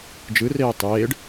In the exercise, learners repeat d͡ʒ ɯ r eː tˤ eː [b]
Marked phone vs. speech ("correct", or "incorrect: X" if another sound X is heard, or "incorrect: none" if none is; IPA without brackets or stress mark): incorrect: ɖ